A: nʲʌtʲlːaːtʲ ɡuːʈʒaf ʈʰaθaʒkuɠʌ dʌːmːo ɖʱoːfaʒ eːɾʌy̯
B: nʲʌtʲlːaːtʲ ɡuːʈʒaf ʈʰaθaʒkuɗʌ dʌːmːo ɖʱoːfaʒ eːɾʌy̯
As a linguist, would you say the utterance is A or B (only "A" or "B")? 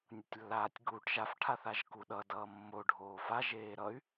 B